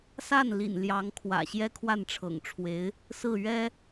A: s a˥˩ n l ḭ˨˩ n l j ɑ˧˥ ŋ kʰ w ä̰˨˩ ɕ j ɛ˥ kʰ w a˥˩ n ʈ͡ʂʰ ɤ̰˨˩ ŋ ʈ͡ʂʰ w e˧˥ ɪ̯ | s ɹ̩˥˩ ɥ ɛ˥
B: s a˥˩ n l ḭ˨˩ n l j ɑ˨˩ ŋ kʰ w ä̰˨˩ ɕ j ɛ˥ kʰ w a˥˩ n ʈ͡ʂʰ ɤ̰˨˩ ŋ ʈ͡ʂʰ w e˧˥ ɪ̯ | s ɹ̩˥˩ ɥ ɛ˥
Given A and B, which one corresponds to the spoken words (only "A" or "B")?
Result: A